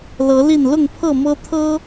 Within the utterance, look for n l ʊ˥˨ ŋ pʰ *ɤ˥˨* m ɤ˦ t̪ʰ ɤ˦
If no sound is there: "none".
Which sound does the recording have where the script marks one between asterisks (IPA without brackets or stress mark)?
ɤ˥˨